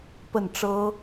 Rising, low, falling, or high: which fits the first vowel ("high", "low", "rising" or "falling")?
falling